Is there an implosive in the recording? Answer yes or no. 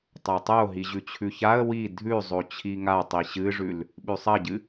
yes